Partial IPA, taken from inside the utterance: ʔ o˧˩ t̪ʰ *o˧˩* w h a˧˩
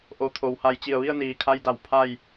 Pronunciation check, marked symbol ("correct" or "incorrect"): incorrect